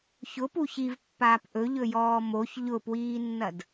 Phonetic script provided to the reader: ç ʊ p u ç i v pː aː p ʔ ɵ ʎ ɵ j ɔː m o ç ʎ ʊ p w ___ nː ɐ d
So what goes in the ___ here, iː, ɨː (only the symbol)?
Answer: iː